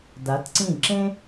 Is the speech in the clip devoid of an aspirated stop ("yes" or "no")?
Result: yes